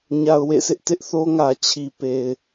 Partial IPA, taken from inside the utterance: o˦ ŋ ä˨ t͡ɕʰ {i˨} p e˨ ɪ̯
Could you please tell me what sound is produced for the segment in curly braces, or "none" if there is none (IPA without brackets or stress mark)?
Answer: i˨